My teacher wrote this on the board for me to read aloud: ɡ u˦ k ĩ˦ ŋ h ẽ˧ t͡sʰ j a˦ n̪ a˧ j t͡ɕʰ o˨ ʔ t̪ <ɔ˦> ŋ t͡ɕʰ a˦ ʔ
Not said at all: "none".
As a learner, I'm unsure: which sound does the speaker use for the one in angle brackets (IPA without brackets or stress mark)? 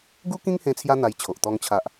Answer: ɔ˦